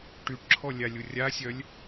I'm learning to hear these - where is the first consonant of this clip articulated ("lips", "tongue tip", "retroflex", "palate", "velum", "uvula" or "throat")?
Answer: retroflex